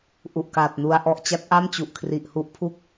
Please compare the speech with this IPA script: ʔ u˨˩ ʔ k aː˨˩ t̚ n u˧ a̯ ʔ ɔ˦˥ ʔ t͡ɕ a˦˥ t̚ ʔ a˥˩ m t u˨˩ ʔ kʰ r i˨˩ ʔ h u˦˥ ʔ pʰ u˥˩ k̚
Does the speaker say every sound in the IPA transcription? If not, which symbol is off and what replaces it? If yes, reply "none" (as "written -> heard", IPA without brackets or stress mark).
t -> t͡ɕ